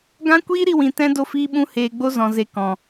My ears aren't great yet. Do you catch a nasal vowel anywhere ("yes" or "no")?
yes